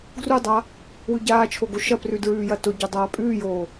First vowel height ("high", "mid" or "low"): high